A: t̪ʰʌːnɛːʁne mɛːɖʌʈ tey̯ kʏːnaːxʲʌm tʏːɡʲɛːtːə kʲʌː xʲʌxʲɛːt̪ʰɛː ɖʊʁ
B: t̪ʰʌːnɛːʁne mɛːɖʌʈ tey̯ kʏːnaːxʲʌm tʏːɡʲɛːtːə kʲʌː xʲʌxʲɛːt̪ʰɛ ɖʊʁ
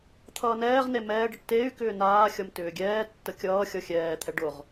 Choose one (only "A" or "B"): B